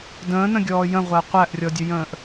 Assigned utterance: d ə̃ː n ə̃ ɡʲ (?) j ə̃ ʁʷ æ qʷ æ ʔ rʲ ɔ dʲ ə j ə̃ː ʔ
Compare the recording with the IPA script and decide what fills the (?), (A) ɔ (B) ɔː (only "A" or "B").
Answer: B